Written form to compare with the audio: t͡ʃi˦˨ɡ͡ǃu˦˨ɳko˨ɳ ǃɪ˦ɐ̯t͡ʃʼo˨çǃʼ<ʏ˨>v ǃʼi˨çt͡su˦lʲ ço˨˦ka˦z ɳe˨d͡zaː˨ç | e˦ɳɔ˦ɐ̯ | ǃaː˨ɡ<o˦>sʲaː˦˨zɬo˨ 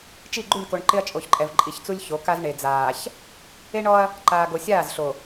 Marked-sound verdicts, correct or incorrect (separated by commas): incorrect, incorrect